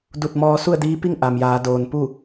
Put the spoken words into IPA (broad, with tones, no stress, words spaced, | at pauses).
du˧˩t̚mɔː˧ su˥˨ə̯diː˧˥pi˥˨ŋ ʔa˩mjaː˩˧ doː˩npu˥˨